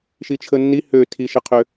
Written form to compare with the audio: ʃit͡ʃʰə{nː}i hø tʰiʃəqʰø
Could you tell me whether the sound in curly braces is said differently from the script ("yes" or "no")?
no